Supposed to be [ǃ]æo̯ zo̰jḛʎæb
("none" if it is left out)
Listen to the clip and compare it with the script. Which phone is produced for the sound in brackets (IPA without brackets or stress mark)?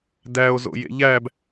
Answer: d